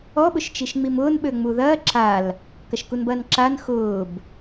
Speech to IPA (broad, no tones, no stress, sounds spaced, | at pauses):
ɔ ɓ ʊ ʃ t͡ʃ i ʃ ŋ͡m i m ʊː n ɓ ø ŋ͡m u ð ɐː ǁ a l | k ɐ ʃ k u n b ɐː n ǁ a n x ʊː b